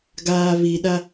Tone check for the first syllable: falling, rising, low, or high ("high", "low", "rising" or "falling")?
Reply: low